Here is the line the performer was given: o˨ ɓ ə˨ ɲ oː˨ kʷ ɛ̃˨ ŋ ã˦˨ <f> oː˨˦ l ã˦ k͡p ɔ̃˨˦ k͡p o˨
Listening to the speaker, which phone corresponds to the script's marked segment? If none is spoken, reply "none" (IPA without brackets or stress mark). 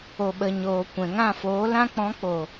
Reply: f